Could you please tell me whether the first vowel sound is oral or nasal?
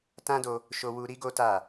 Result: nasal